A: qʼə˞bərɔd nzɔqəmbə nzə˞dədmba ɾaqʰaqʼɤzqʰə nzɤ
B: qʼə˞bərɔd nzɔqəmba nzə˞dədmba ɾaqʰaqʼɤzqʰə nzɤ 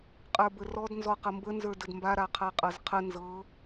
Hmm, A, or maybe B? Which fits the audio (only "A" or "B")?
A